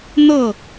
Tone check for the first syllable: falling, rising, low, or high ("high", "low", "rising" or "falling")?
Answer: falling